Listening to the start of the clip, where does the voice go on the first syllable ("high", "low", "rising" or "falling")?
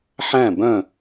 falling